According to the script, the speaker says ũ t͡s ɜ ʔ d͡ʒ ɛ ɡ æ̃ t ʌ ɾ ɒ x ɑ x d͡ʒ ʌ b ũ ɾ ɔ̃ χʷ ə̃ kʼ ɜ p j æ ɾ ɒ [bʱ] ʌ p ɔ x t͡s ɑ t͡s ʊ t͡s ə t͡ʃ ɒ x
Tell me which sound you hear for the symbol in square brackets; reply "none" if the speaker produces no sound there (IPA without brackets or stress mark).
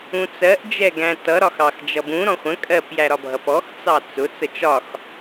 bʱ